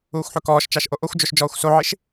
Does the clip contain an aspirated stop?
no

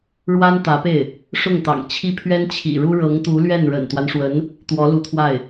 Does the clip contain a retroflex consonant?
yes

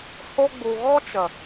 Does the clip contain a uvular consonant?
no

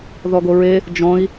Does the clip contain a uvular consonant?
no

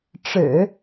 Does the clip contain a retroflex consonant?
yes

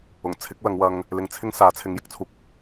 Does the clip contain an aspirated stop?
yes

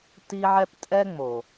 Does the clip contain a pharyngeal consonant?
yes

